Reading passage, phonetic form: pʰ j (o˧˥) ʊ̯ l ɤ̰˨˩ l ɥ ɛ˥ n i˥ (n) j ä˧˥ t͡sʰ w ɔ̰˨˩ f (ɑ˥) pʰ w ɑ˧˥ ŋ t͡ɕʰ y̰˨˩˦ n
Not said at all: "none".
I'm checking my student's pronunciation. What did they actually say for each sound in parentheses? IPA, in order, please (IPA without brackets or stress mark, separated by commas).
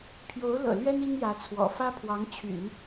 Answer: o˧˥, ŋ, ä˥